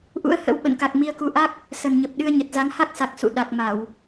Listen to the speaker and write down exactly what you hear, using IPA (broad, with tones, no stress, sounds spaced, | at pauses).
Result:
ʔ ṵ˧˥ ə̯ h ə̰˧˥ w ɓ ə̰˧˨ n k a˨˩ k̚ m i˧ ə̯ k u˧ ʔ a˦˥ k̚ | s ə˨˩ n ɲ ə˨˩ p̚ ɗ ɨ˧ ə̯ ɲ ə˨˩ t̚ z a˨˦ ŋ h a˦˥ k̚ s a˨˩ k̚ s ṵ˧˨ ɗ a˨˩ k̚ m a˧˩˨ w